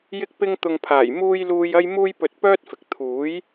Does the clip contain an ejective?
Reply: no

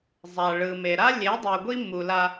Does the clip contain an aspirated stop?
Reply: no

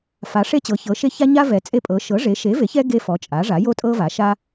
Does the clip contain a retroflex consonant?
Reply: yes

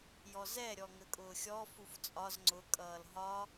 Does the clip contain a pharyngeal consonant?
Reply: no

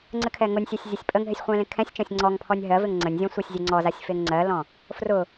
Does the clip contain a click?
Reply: yes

